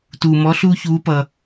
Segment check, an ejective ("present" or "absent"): absent